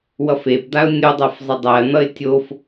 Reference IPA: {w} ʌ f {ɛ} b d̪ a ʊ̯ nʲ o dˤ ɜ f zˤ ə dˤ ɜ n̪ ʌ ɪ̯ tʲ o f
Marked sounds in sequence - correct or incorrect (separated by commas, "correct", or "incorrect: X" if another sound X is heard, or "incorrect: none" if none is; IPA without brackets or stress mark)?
correct, incorrect: e